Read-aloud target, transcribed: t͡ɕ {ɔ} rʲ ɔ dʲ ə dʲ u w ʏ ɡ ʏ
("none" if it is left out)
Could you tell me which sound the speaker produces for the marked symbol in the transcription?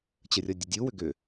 ə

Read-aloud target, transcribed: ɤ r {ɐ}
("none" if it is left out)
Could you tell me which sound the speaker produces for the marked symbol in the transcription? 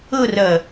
ɐ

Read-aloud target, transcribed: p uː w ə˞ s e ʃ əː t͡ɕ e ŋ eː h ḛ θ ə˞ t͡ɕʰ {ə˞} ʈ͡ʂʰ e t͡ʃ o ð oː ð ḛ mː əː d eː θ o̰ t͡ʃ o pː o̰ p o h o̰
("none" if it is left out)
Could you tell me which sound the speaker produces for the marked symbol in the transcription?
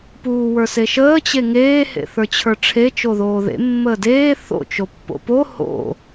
ə˞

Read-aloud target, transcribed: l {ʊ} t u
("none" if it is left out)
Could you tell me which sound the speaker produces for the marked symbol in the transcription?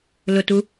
ʊ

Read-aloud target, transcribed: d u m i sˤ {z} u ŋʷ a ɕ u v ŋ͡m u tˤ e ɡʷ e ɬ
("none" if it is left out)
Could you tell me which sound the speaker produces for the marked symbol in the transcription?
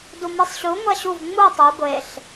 ɕ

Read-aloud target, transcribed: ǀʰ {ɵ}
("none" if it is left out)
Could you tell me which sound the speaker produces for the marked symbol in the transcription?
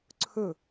ɵ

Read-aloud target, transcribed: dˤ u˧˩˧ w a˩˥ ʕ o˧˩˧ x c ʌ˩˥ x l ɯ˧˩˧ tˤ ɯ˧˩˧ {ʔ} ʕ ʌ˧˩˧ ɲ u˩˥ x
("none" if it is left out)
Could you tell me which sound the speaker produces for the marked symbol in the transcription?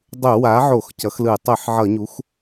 ħ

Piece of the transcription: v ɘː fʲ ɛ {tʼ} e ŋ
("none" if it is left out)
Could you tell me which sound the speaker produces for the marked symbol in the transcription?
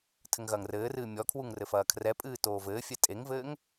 tʼ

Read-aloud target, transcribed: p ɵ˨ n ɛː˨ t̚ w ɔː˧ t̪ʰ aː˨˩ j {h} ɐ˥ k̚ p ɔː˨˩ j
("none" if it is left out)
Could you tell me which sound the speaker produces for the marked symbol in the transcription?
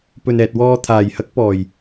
h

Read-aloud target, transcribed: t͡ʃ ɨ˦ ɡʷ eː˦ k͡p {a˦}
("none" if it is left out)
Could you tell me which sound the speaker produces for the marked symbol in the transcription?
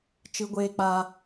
a˦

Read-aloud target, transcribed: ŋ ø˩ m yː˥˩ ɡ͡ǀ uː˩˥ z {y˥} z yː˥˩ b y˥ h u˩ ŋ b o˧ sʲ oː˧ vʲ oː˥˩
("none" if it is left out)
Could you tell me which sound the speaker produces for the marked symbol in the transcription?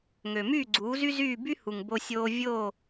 y˥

